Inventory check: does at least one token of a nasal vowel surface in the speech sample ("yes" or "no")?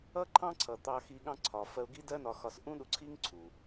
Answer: yes